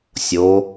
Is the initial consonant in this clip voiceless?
yes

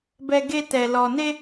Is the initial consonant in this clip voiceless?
no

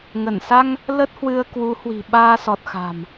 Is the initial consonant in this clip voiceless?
no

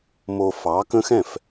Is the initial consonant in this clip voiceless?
no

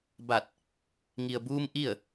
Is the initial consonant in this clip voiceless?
no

